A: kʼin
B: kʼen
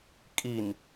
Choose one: A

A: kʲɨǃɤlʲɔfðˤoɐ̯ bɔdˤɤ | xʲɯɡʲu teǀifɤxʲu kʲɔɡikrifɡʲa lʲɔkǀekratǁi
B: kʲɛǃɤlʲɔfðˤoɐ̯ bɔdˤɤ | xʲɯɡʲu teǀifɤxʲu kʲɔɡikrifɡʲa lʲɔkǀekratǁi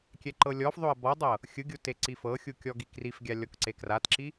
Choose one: B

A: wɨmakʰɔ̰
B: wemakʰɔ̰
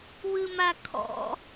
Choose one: A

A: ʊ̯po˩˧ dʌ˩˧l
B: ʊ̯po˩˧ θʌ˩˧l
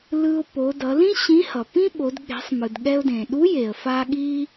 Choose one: A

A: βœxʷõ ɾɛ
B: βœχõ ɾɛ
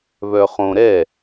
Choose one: B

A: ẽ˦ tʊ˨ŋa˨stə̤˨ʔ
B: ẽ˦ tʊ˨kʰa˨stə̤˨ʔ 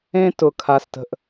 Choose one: B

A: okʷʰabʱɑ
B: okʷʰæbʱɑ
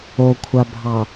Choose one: A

